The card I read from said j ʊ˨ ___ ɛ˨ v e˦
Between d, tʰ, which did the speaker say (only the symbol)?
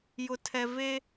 tʰ